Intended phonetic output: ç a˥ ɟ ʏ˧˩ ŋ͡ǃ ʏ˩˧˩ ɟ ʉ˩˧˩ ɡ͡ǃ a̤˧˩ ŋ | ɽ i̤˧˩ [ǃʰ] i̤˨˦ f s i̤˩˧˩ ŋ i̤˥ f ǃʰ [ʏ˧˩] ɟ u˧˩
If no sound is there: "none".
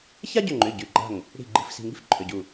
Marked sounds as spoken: ɡ͡ǃ, ʏ˩˧˩

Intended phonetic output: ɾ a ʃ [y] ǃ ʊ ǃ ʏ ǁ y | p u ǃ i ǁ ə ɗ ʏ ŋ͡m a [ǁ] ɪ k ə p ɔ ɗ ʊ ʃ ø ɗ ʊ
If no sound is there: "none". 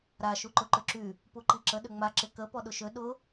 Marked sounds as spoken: u, ǁ

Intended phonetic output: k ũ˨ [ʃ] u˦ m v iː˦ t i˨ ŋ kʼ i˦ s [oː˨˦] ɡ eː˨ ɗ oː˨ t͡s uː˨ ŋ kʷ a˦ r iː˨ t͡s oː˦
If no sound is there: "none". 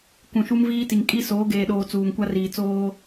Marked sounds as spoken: ʃ, oː˨˦

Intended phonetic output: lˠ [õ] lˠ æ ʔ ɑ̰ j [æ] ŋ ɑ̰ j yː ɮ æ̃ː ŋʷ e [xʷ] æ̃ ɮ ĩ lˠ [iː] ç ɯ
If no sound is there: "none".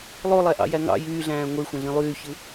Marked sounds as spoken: o, æ, xʷ, yː

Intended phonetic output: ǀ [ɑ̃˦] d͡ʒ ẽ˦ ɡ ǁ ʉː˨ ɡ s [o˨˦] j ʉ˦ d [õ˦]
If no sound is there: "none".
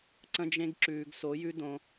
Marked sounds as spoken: ə̃˦, o˨˦, õ˦

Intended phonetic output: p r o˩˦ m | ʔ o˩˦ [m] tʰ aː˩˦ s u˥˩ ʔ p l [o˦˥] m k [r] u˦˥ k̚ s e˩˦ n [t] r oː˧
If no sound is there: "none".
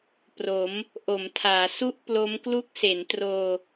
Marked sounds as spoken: m, o˦˥, l, t

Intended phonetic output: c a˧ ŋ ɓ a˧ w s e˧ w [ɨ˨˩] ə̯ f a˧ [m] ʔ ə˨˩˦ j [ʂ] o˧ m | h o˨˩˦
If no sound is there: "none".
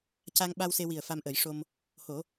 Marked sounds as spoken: i˨˩, m, ʂ

